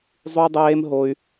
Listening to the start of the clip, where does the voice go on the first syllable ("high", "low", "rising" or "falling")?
high